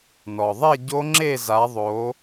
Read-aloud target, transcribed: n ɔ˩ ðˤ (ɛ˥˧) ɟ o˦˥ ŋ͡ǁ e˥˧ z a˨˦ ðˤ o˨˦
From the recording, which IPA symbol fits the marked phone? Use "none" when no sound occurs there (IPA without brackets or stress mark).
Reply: ɛ˥˧